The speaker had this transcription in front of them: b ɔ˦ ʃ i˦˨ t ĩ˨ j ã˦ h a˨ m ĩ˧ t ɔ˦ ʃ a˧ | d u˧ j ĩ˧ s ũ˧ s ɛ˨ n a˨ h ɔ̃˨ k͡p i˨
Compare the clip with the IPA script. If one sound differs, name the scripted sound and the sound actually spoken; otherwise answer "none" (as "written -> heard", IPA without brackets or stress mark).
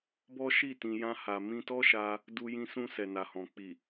ã˦ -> ã˧